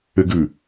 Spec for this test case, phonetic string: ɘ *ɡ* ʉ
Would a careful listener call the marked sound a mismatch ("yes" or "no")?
no